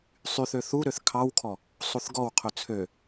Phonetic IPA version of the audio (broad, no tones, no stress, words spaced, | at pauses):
sˤyθø θuɾøθ kʰɑwkʰɔ | sˤuθɡɔwqʰɵ t͡sʰø